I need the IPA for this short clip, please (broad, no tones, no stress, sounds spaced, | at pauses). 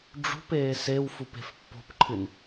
ɖ͡ʐ ṳ p eː s e w f u p e̤ f pː o̤ p ǃʰ ɨ n